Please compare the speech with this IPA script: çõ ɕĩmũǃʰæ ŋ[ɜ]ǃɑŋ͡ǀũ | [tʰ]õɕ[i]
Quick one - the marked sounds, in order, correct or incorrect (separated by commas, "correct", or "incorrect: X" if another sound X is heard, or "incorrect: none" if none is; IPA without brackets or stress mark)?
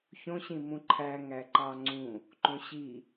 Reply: incorrect: æ, incorrect: ǃ, correct